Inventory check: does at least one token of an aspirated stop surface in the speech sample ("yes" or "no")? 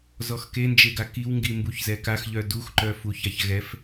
no